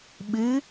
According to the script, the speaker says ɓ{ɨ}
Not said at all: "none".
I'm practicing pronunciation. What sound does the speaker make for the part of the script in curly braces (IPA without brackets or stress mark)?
ɨ